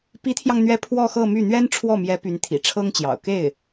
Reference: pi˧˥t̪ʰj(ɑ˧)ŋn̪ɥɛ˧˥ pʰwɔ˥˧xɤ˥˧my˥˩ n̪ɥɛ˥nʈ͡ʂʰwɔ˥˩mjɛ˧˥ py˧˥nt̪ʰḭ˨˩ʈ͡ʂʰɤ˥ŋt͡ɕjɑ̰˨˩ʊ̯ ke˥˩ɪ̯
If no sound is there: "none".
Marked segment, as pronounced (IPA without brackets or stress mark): ɑ˧